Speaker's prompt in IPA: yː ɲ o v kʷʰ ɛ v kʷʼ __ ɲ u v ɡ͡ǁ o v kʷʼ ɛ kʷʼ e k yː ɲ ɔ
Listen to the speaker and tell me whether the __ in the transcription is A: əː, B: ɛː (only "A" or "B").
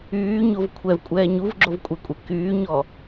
B